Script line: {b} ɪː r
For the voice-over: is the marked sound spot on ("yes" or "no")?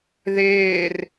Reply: no